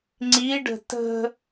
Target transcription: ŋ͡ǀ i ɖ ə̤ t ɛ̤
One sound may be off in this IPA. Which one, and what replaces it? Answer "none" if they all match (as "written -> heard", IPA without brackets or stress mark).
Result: ɛ̤ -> ə̤